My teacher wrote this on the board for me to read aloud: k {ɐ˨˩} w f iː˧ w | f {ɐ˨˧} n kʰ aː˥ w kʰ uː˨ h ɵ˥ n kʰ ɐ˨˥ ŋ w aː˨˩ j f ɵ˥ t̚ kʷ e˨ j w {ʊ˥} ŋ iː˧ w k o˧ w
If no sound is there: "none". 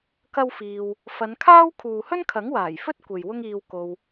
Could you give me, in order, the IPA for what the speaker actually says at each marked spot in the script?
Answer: ɐ˥, ɐ˨˧, ʊ˥

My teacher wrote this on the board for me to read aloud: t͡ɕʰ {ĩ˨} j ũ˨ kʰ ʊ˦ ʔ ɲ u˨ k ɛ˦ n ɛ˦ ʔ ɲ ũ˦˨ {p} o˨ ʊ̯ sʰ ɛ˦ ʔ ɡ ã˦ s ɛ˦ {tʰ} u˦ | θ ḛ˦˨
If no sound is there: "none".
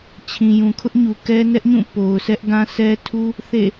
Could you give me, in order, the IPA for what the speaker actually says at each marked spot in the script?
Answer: ĩ˨, p, tʰ

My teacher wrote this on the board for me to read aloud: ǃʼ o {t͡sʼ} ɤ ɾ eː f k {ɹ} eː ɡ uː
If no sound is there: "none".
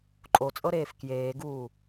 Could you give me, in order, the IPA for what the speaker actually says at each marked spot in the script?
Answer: t͡sʼ, j

